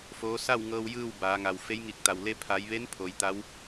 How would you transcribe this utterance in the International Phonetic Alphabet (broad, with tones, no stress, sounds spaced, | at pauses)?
f oː˧˥ s a˥˨ w ŋ ɤː˧ w j ɯː˥˨ w b aː˩˧ ŋ a˩ w f e˧˥ j ŋ i˧˩ k̚ t̪ a˩ w l e˧ pʰ a˩˧ j ʋ e˧˥ n pʰ o˩˧ j t̪ a˧˥ w